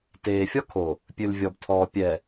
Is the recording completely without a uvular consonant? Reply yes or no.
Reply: yes